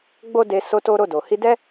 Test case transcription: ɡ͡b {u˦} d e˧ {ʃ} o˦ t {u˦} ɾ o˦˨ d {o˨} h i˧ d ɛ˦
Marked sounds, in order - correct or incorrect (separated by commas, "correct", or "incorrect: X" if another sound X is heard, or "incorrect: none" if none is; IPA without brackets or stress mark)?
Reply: incorrect: o˦, incorrect: s, incorrect: o˦, correct